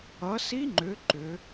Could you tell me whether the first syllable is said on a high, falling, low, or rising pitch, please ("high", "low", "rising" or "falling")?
rising